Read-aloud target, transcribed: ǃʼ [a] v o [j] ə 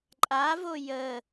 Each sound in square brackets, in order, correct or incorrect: correct, correct

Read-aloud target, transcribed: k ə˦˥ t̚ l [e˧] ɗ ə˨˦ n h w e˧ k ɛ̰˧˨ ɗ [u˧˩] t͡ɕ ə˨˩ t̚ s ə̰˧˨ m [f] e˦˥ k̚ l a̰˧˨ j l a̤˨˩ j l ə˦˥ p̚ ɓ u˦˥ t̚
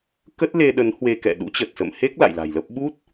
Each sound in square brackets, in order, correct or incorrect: correct, incorrect: ṵ˧˥, incorrect: h

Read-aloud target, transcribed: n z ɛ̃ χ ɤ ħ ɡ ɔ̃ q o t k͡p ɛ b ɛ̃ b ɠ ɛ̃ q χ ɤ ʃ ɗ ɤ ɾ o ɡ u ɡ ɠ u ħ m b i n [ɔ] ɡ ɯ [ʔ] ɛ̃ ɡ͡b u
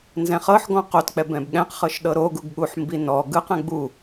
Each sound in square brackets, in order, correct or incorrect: correct, incorrect: q

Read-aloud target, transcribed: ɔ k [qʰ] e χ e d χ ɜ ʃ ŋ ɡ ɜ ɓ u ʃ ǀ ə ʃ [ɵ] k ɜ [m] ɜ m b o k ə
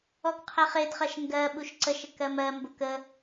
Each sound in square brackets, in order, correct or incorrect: correct, incorrect: ə, correct

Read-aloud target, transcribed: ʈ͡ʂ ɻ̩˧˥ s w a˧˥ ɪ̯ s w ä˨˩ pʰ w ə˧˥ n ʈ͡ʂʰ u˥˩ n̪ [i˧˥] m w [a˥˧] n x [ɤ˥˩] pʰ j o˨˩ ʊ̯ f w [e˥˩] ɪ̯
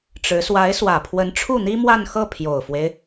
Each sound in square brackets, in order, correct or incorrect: incorrect: i˥, correct, correct, incorrect: e˦

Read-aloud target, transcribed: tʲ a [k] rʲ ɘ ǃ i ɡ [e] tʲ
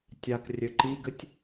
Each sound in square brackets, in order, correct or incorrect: correct, incorrect: ɘ

